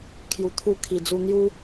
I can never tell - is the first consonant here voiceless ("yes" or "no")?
yes